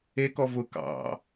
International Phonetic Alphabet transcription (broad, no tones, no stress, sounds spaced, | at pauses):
e k ɔ v ʊ k ɑ̰